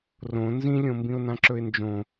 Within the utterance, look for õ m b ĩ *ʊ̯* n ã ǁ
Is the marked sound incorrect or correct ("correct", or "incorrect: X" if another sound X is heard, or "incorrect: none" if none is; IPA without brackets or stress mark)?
correct